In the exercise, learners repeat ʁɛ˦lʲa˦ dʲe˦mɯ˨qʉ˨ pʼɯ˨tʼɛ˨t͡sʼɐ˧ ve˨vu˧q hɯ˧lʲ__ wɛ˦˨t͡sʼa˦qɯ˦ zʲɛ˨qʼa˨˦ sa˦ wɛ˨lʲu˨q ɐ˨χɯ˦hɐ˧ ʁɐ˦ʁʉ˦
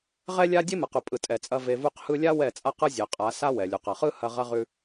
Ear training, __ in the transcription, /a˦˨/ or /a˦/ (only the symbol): a˦